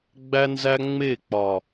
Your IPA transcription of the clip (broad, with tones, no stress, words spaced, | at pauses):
ɡ͡bæ˦nzæ˦ŋ͡me˦˨k͡pɒ˨